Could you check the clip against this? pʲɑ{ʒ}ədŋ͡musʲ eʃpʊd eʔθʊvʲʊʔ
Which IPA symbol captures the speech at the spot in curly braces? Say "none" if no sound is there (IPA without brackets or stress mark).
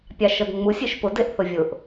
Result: ʃ